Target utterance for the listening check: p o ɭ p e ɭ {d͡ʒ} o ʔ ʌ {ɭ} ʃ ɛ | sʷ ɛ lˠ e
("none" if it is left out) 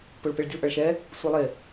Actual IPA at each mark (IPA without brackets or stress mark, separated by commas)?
dʲ, ɭ